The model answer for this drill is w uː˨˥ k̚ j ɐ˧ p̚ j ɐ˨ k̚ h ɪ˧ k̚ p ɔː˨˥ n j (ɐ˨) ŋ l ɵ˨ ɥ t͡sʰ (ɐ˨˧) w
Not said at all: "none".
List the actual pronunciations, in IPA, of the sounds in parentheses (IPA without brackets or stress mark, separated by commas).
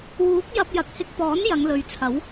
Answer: ɐ˨˧, ɐ˨˥